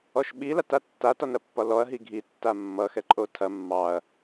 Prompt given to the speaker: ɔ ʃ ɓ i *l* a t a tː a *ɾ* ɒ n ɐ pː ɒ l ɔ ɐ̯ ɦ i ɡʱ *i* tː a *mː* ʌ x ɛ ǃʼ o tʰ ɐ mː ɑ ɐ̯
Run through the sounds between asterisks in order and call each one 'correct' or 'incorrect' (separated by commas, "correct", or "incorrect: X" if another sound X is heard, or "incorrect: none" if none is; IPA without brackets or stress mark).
correct, incorrect: t, correct, correct